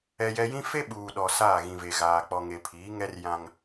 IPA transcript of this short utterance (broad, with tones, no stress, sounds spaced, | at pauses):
ɛ˨ j ɛ˨ j ĩ˦ f e˦ ɓ uː˨ ɗ ɔ˨ s aː˦˨ ɣ ĩ˨ v e˨ ɣ aː˨ k͡p ɔ˨ ŋ e˨ pʰ iː˨˦ ŋ ɛ˦ r j ã˦ ŋ